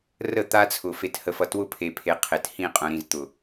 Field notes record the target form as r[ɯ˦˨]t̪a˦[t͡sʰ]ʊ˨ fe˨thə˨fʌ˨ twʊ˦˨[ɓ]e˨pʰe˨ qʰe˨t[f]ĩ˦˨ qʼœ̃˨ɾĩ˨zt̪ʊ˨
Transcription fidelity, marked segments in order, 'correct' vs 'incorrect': incorrect: ə˦˨, correct, incorrect: pʰ, incorrect: h

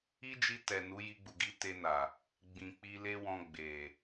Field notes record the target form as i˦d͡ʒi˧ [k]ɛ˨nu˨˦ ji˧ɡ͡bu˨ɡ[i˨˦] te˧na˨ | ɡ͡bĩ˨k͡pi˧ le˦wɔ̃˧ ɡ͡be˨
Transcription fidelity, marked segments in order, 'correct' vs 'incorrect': incorrect: t, correct

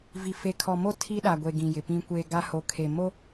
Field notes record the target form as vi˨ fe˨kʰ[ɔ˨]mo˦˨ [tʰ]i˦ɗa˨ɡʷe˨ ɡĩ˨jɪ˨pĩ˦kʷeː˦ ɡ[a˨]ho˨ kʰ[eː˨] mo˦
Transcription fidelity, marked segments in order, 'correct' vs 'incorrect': correct, correct, incorrect: a˦, incorrect: e˨

